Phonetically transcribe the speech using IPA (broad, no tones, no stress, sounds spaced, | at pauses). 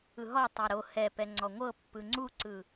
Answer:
ɯ ɦ ɔ tˤ a ɾ o h ɛ p ɛ ŋ͡ǀ ɔ ŋʷ ɤ pː ɯ ŋ͡ǀ u ǀ ɯ